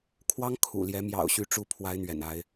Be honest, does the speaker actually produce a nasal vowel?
no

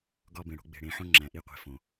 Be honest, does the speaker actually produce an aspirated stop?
no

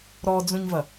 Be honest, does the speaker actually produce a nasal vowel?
yes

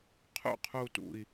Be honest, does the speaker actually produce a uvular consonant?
yes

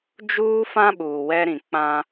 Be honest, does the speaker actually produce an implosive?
yes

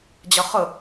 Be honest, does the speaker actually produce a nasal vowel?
no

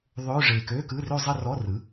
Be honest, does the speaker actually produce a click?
no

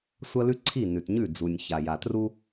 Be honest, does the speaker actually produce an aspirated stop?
yes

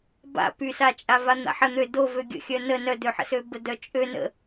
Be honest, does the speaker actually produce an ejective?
yes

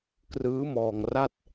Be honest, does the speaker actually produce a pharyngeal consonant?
no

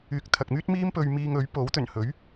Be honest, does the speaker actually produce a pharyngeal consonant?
no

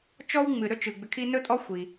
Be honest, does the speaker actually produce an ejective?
yes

